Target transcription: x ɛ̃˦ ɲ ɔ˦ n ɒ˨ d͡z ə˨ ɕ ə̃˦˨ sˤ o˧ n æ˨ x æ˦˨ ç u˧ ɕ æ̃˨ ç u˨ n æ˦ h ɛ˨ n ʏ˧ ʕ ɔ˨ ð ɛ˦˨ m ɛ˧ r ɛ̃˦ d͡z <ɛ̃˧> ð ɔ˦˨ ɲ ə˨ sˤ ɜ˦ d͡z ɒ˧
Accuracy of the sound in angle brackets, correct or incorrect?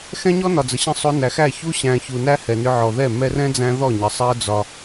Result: incorrect: æ̃˧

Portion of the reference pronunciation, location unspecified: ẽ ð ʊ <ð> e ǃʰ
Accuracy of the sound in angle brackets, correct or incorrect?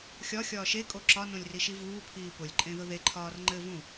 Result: correct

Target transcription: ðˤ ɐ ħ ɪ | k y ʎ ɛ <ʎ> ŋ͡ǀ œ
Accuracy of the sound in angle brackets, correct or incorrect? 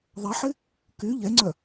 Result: incorrect: none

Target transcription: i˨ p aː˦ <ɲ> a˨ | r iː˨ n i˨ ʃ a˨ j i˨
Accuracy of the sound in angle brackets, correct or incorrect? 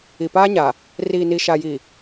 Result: correct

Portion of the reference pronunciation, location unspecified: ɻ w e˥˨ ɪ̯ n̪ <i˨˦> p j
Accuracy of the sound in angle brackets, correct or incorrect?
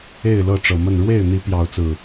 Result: correct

